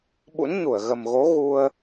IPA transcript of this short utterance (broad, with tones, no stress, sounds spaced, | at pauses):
ɓ ṵ˧˥ n ɲ u˧˩ ə̯ ɣ ə˨˩ m ɣ o˨˦ ɣ u˧ ə̯